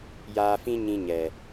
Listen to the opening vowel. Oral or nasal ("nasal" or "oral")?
oral